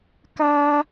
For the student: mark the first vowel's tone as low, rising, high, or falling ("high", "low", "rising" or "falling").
high